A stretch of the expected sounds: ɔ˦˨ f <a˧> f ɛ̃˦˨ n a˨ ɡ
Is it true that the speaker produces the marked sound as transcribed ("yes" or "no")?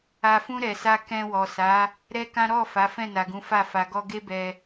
no